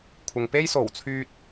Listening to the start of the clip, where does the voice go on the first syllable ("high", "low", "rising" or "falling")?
low